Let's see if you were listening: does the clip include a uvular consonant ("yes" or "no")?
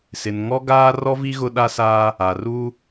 no